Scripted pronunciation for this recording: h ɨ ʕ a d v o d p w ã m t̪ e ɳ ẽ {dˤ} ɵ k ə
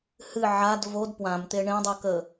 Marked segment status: correct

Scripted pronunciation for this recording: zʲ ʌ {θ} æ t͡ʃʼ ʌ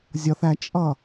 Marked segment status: correct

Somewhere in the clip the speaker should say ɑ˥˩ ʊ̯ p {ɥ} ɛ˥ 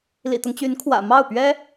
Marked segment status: correct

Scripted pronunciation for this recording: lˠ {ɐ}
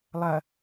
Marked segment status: correct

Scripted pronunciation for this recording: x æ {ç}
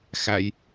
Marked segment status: incorrect: j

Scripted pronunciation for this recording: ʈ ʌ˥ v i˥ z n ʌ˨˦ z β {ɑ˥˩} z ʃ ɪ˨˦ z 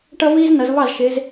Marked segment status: correct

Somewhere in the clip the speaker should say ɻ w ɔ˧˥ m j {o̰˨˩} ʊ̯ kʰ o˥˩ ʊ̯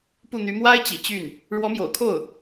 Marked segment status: correct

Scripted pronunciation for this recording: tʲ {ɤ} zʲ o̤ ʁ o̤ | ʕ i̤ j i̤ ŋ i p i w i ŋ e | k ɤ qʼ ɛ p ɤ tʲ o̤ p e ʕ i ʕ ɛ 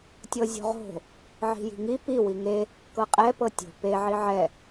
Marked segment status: correct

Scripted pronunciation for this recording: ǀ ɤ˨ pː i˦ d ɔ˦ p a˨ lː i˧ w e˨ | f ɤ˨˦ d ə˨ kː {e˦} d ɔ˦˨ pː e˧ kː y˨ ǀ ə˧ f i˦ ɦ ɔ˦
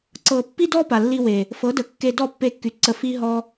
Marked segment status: incorrect: e˧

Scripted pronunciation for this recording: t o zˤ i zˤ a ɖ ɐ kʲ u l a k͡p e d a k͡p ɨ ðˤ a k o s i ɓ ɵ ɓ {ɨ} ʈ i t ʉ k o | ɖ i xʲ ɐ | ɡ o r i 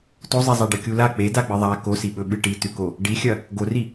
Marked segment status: correct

